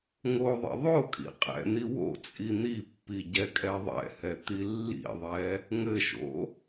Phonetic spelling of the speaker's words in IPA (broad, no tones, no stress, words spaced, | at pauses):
ŋoðˤḭ ðˤokʼḭ qʼɛ̰n̪i wo̰t͡sʼi n̪ipːi ɟɛkʼɛðˤɛ̰hɛ t̪ilːḭðˤɛ | ŋɘʃo̰